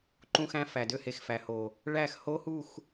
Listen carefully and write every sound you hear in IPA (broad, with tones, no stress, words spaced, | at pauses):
ǃũ˦xæ̃˦fæ˨dø˦ he˨xfæ˨ho˨ | ɭæ˦˨x ho˦hu˦˨x